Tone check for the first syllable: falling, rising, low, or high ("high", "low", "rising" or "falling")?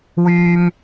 high